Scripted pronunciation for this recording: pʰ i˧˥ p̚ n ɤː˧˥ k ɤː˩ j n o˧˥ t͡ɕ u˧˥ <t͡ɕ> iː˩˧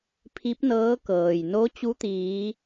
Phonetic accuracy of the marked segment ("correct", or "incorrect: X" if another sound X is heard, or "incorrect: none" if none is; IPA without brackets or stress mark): incorrect: t̪